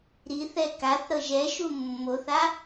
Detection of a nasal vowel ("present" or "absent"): absent